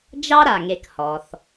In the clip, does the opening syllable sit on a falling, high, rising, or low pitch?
high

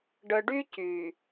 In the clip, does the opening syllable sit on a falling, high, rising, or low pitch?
low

